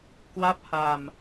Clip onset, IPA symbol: k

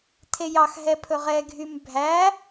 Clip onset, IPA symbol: tʰ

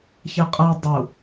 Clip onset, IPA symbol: ç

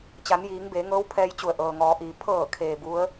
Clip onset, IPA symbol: t͡ɕ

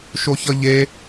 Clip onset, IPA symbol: ʃ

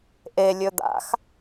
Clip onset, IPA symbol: ʔ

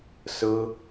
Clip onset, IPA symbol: s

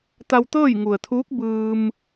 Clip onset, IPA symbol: t̪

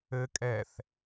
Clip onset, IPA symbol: ɘ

